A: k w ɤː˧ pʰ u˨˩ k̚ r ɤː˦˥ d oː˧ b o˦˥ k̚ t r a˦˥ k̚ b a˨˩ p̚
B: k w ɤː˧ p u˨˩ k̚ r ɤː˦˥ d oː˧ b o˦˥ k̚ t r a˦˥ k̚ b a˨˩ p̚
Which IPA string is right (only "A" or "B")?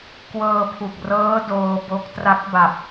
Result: A